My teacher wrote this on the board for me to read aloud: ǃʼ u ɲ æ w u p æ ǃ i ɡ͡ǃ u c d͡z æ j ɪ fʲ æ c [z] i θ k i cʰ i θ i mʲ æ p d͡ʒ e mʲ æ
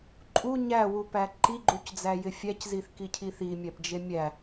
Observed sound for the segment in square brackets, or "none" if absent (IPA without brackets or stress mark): z